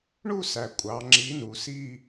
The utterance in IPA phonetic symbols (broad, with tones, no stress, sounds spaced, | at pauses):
ɳ u˥˧ s æ˨˩ kʷʼ ɑ˩˧ ŋ͡ǁ i˨˥ n u˩˧ s i˥˧